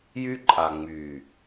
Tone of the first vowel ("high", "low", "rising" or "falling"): high